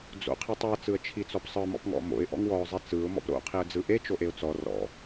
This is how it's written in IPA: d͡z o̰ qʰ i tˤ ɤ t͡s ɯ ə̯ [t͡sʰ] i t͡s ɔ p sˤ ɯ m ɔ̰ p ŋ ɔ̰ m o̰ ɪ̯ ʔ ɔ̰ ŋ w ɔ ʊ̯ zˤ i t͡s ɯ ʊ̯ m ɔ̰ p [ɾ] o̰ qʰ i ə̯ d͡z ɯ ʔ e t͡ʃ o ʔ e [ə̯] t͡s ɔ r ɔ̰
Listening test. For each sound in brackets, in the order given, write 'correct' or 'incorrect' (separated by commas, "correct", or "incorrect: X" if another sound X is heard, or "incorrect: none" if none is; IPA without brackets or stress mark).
incorrect: t͡ʃʰ, correct, incorrect: ʊ̯